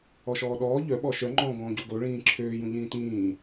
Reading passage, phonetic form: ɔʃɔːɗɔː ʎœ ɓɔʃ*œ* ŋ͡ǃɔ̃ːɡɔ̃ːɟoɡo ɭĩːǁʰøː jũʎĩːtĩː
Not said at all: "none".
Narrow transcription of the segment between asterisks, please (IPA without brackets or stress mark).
œ